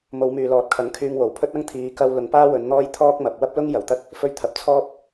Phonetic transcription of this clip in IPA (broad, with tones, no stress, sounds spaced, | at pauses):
m o˨˧ w m yː˨ l ɔː˨˥ t̚ kʰ ɐ˨˥ ŋ kʰ yː˧ ŋ w o˨˩ w pʰ ɵ˥ t̚ ɐ˥ ŋ t̪ʰ iː˨˧ k ɐ˧ w l ʊ˨˧ ŋ p aː˥ w ɵ˨˧ n n̪ ɔː˥ j t̪ʰ ɔː˥ k̚ m ɐ˨ p̚ w ɐ˥ p̚ l ʊ˥ ŋ j ɐ˨˩ w t̪ ɐ˥ t̚ | f ɵ˧ ɥ t̪ʰ ɐ˨ p̚ t͡sʰ ɔː˥ p̚